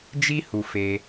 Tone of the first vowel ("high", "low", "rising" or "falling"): high